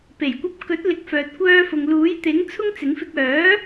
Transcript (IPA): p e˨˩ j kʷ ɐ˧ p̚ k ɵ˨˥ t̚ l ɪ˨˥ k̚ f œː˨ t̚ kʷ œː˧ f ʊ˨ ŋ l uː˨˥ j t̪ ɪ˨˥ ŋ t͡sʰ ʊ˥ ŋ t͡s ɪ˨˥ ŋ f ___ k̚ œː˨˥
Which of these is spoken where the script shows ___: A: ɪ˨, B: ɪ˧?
B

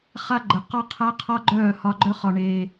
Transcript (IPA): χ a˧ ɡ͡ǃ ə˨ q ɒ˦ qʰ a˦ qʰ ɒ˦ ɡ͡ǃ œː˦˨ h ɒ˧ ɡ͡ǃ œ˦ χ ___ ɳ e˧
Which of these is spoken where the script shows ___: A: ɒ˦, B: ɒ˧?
B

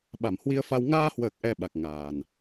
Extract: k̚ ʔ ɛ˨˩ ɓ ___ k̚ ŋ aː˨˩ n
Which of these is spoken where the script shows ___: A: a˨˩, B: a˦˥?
A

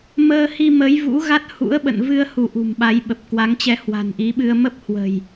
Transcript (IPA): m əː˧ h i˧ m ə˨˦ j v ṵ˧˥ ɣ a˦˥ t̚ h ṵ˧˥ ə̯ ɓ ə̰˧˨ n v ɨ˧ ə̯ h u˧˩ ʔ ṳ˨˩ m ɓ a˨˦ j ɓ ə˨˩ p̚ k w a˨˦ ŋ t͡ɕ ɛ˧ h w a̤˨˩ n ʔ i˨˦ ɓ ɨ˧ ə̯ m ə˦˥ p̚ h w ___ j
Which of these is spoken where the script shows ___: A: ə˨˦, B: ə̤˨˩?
B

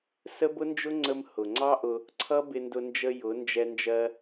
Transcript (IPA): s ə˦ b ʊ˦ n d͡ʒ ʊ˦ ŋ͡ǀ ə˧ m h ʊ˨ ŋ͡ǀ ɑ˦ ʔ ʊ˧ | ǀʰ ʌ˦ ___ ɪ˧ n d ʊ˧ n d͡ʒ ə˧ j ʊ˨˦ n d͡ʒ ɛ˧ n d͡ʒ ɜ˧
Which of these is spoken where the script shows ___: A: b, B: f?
A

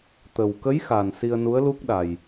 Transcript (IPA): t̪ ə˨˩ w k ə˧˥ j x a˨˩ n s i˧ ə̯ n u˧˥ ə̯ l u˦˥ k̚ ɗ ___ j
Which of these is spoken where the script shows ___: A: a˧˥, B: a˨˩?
B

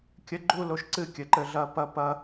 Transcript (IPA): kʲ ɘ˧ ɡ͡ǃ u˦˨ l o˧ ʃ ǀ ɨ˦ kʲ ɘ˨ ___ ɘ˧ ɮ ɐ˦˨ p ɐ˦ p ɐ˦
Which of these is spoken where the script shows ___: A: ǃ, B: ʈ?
A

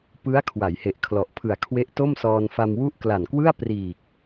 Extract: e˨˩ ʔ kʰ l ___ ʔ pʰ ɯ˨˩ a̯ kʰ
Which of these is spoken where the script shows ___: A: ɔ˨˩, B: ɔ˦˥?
A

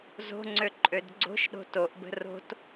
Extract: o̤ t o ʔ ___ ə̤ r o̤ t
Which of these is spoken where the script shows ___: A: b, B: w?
A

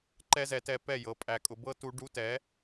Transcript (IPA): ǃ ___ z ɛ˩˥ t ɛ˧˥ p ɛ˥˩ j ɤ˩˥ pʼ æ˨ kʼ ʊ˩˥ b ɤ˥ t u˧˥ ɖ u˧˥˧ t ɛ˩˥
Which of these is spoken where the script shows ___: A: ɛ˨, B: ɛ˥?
B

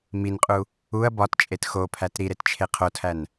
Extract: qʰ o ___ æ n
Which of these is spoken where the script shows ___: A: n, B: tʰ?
B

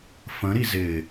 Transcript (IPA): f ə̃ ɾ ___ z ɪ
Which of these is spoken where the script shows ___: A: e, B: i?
B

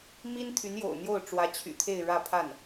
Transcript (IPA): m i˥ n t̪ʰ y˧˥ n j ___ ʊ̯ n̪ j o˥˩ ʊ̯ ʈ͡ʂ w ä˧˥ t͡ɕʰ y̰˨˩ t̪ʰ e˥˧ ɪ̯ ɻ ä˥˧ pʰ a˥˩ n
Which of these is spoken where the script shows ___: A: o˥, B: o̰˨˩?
B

